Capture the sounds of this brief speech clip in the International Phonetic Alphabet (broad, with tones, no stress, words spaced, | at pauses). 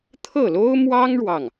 t̪ʰɤ˥˩lo˥ʊ̯mwɑ˥ŋ ɻwɑ˥˩ŋ